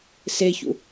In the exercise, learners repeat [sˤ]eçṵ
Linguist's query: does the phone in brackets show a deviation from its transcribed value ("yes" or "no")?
yes